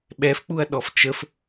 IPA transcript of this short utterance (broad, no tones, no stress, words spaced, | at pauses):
ɓɛfk͡puɐ̯ ɗɔft͡ʃəf